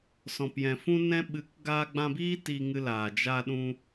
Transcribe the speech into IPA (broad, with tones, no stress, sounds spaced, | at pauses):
s ɔ̃˨ p j ɛ̃˨ f ũ˦ n ɛ̃˦ ɓ ɨ˨˦ k ɡ aː˧ ɡ͡b ã˧ b iː˦ t iː˧ ŋ ɨ˧ l aː˨ d͡ʒ a˧ ɗ ũ˧